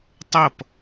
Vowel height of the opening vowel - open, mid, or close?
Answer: mid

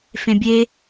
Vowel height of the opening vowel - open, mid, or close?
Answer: mid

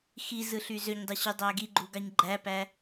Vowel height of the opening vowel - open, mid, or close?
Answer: close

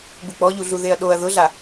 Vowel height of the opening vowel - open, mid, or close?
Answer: close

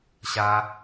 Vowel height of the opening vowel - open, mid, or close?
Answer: open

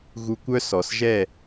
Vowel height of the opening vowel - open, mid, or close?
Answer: close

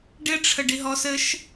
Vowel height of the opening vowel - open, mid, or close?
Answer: close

